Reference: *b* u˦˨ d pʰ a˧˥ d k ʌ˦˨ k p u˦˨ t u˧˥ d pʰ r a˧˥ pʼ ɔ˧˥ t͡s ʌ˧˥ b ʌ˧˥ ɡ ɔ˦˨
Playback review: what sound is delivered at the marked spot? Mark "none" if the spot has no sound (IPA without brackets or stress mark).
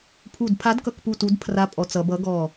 pʰ